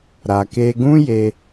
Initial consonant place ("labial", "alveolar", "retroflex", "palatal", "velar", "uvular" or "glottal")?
alveolar